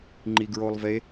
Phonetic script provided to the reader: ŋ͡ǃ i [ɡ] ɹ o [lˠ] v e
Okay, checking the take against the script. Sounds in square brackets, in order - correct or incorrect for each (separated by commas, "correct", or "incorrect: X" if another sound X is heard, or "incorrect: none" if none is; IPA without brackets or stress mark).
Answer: correct, correct